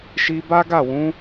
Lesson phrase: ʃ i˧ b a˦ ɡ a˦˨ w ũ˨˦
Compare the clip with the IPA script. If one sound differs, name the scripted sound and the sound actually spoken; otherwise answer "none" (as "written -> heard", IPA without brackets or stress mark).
none